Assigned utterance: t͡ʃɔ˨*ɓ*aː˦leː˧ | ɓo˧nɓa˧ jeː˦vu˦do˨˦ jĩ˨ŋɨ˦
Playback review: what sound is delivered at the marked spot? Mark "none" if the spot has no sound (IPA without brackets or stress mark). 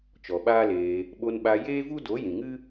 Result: ɓ